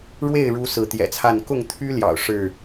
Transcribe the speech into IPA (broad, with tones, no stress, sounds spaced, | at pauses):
ɻ w e˥˨ ɪ̯ ɻ u˦ s ɹ̩˨˦ t̪ j ɛ̰˨˩ t͡sʰ a˥˨ n k ʊ˥˨ ŋ t̪ʰ y˦ l j ɑ̰˨˩ ʊ̯ ʂ ɻ̩˥˨